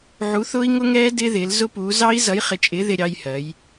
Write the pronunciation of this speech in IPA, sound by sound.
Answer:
ʕ u˨˥ θ ʊː˦˥ i̯ ŋ ʊ˦˥ ŋ ɛː˦˥ d ɪː˦˥ ð ɪː˨˥ l z ʊ˦˥ p uː˨˥ z ɑ˦˥ i̯ z ʌ˨˥ j χ ɪ˨˥ t͡ʃʼ ɪː˨˥ ð ɪ˦˥ ɾʲ ɑ˦˥ j h ɜ˨˥ j

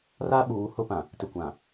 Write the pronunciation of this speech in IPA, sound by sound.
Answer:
r a˦ ɓ uː˨˦ h ʊ˦ p ã˨ | t ɪ˨ kʷ ã˨

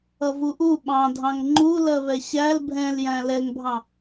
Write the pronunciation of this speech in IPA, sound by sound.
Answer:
ʌ v u ʔ u ɓ ɑ̃ dʱ ɑ̃ ŋ ŋ͡ǃ u l ɜ β ɛ ɕ æ l bʱ ɛ̃ l j æ̃ l ɛ ŋ bʱ ɑ̃

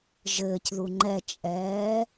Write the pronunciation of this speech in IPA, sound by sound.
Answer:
ʒ ɘː c ð u ŋ͡ǃ ɛ t͡ʃʼ ɛː

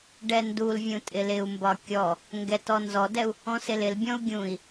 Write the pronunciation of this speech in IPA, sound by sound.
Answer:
ɖ ɛ n d u l vʲ ũ tʼ ɪ l ɪ u̯ m b ɒ kʲ ɔ | ŋ ɡ ɛ t ɔ n z ɔ d ɛ u̯ | ɔ̃ s ɪ l ɪ l bʲ ɔ̃ u̯ ɡʲ ũ i̯

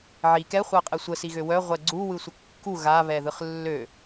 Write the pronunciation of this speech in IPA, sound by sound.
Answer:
ʕ i k ɛ χʷ a qʼ ɛ sʷ ə s i ɣ ø w œ ʁʷ ɛ ɡ͡ǀ u w ɯ sʷ ə kː u ɣ a β ɛ ð ɯ χ lː ø

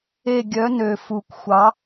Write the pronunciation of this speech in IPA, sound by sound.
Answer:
e˦˨ ɡʲ œ˨˥ n ø˨˩ f u˨˩ kʷ xʷ ɑ˨˥

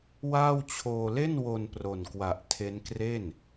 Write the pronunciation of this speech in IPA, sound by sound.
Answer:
w aː˥˩ w t͡ɕʰ oː˧ l e˥˩ n w o˧ n p r o˨˩ n k w a˨˩ ʔ tʰ e˦˥ n k r e˥˩ n

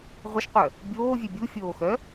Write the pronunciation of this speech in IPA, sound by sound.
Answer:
ʁʷ ə ʃ qʷ œ | bʲ oː vʲ ø bʲ u fʲ oː x œ

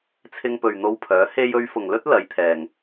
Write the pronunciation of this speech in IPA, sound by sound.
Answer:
t͡sʰ ɪ˧ ŋ p ɵ˨ ɥ n̪ o˧ w pʰ œː˨˥ h e˧ j ɵ˧ ɥ f ʊ˨ ŋ l ɵ˥ t̚ l ɐ˨˧ j t̪ʰ ɛː˨ ŋ

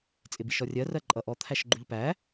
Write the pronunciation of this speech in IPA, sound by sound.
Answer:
t͡sʼ ɪ b i ʃ ɔ rʲ ɜ r ɜ ǃʼ ʌ ʔ ɔ t̪ʰ æ ʃ ɡ͡ǃ u ʎ p æ

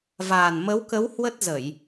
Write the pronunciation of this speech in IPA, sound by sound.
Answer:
v aː˨˩ n m ə˨˦ w k ə˨˦ w h w ə˦˥ t̚ z ə˧˩˨ j

